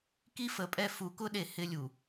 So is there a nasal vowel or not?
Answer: no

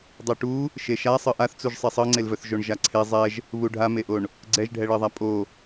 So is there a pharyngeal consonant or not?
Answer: no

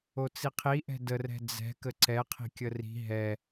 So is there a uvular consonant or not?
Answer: yes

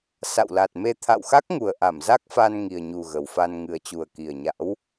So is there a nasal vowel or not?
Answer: no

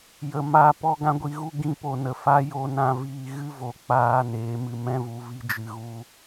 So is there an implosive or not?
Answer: no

